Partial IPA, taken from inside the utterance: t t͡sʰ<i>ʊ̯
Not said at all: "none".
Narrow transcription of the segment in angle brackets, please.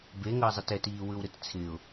ɪ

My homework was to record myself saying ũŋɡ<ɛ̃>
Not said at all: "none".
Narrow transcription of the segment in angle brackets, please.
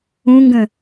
ə̃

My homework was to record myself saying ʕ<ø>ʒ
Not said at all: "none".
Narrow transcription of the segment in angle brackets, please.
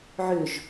ø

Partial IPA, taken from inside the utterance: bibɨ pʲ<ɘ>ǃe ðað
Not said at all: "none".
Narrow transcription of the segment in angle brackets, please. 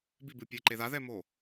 ɘ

